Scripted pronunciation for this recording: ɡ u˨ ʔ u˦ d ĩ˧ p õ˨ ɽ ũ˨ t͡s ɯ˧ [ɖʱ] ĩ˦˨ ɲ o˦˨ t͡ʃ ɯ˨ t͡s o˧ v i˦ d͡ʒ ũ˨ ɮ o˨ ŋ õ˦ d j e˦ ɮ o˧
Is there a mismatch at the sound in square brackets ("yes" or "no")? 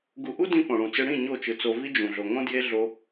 yes